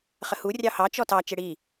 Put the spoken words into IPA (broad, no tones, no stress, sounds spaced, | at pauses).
χ ə h u rʲ ɑ h ɑ t͡ʃ ɔ t ɑ t͡ʃ ɪ ɽ i